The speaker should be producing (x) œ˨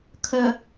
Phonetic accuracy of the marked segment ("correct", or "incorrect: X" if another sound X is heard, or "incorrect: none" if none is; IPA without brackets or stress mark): incorrect: kʰ